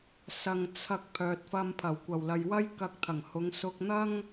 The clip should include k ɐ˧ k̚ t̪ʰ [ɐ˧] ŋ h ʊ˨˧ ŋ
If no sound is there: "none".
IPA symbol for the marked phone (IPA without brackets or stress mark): ɐ˨˩